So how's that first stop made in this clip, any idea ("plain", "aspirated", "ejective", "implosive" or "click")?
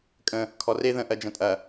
ejective